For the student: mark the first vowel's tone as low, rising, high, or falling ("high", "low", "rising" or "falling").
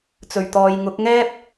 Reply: low